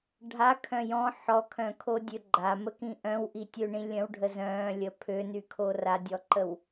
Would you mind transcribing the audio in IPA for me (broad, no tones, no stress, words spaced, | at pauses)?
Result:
ɖʱakʰœ̃ jɔ̃ ħɔkʰœ̃kʰodʲø ɡ͡ǃaməkĩ ʔœ̃wʔitʲøɳĩ lʲə̃wɖʱə zœ̃lʲə pʰønykʰo radʲɔǃəw